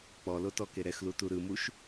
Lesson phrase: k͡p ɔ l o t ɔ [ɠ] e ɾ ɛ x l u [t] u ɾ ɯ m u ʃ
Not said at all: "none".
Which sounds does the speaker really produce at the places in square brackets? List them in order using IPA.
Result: k, t

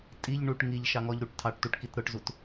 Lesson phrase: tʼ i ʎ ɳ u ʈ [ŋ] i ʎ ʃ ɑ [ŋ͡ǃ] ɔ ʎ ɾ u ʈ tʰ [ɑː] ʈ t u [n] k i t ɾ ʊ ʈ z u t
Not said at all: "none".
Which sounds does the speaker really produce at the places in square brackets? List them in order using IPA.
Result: ŋ, ŋ, ɑ, ʈ

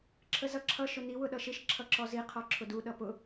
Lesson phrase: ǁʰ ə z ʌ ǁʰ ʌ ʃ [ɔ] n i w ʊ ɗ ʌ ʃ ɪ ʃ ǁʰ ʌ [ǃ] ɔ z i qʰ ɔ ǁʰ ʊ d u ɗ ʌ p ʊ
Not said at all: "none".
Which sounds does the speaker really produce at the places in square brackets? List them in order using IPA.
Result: ʊ, ǁ

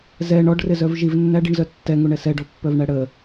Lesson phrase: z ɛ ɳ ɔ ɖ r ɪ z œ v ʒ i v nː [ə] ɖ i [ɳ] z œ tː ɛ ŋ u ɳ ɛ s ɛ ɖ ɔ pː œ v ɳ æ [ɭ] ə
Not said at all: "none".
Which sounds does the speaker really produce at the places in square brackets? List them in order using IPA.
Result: æ, ɳ, ɽ

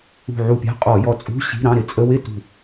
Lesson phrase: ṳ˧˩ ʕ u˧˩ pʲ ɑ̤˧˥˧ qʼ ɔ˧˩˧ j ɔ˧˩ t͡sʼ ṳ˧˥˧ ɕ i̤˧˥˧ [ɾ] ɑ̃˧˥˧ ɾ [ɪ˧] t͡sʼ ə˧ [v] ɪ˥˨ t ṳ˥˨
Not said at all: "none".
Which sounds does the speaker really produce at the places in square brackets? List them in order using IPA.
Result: ɾ, ɪ˧, w

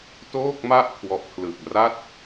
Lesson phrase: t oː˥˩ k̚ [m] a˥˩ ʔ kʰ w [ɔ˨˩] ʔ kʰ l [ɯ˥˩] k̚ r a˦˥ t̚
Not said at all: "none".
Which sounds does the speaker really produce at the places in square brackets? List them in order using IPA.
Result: m, ɔ˨˩, ɯ˨˩

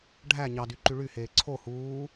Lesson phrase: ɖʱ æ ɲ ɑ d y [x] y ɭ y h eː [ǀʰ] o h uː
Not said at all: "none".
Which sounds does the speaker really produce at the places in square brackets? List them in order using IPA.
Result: ǃ, ǀʰ

